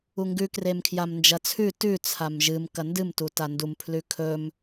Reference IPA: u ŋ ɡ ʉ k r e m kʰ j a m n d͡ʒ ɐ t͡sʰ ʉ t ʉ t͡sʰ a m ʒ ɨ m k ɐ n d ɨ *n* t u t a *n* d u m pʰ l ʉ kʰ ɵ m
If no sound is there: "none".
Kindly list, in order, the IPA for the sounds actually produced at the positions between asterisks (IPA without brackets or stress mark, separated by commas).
m, n